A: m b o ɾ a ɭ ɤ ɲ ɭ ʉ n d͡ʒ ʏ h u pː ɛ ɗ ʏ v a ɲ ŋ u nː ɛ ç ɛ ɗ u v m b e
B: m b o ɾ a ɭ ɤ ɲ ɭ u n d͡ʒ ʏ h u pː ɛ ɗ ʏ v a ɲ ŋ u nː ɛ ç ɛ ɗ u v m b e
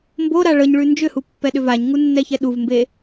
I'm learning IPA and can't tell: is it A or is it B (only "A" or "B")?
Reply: A